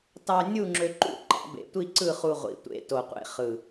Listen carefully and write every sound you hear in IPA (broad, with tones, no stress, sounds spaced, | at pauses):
t ɑ˧ nʲ u˥˨ ŋ͡ǁ ø˧ ǃ ṵ˥˨ ǃ ɑ̰˨˩˦ b ḛ˨˩ tʷ i˥˨ ǀ ɯ˥˨ χ u˧ ʁʷ ḭ˨˩ tʷ ḛ˧ t o˨˩ qʷ ḛ˧ χ ɯ˨˩